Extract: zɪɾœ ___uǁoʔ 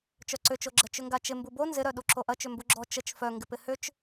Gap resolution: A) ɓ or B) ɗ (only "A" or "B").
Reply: B